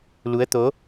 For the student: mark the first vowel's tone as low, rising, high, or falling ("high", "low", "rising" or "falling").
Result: rising